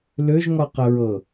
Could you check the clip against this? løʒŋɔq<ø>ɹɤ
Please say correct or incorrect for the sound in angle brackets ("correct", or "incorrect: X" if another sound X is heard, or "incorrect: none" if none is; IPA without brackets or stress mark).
incorrect: ə